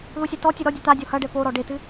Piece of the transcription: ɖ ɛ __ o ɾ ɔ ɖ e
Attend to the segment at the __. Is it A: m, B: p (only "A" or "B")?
B